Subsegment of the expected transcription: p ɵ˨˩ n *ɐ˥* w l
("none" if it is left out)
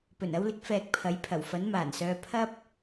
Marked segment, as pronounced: ɐ˧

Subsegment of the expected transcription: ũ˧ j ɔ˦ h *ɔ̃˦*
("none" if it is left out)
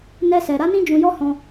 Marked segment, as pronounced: ɔ̃˦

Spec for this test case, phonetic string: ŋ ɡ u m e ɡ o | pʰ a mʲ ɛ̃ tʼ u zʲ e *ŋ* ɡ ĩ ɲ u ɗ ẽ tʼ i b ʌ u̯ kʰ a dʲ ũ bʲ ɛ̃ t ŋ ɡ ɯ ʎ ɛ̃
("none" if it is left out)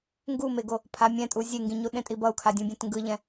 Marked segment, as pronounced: ŋ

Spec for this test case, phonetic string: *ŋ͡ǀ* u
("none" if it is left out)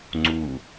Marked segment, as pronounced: ŋ͡ǀ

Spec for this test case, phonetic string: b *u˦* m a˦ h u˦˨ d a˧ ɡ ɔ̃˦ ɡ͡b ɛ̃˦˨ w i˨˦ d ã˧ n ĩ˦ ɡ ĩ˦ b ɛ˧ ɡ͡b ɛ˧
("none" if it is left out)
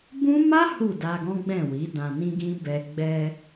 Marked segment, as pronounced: ũ˦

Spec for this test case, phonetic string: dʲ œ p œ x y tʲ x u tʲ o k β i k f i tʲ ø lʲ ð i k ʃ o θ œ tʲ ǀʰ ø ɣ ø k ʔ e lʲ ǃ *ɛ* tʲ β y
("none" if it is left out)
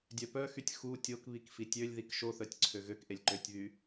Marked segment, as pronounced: ø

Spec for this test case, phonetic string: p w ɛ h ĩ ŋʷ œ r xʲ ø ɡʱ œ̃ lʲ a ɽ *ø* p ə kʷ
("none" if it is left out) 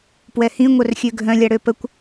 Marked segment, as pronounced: ø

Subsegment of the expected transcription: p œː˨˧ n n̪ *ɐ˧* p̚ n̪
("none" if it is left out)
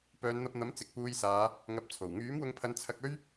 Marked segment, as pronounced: ɐ˧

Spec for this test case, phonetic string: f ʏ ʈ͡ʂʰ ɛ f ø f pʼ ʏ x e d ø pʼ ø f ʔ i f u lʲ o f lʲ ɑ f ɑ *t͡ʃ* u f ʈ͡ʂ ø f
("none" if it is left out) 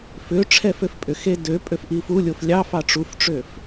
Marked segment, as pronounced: ʈ͡ʂ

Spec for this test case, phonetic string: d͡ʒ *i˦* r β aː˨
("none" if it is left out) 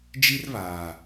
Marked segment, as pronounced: i˦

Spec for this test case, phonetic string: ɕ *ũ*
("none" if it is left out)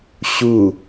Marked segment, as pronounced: u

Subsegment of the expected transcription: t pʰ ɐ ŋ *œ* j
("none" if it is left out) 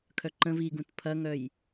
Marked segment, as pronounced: œ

